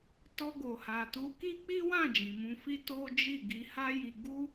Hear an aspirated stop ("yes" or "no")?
no